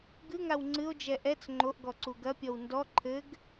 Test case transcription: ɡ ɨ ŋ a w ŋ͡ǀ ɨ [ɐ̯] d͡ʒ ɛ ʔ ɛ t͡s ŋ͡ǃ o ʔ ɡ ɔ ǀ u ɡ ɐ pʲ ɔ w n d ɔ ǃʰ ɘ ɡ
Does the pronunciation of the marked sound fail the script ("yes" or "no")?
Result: yes